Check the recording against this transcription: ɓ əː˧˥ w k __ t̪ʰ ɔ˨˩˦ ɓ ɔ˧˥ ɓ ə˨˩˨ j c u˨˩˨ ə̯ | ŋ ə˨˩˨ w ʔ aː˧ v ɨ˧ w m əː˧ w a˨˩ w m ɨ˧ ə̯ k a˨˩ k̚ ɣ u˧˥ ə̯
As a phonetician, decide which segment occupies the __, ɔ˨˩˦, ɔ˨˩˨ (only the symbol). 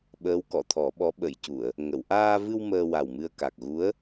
ɔ˨˩˨